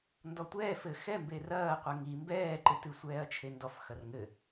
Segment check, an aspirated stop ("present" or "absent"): present